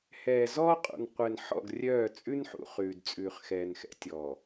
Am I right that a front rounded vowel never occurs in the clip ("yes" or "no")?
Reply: no